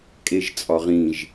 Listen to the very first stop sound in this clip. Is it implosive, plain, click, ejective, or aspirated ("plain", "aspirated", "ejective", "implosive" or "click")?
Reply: ejective